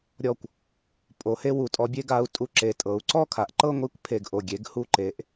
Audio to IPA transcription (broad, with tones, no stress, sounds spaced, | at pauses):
ɾʲ ɔ˧˩ kʷ | pʼ o˩˧ h e˧ w u˩˧ tʼ ɔ˩˧ bʲ e˧ ɡ a˧ u̯ tʼ u˧ ǁ e˩˧ tʼ ɤ˩˧ u̯ ǀ ɔ˥˧ kʰ a˩˧ ʔ ǃ ɤ˥˧ ŋʷ i˥˧ kʷ pʰ e˧˩ ɡ ʔ o˧˩ ɡʲ e˩˧ ɡ h u˧˩ ǃ e˩˧ ʔ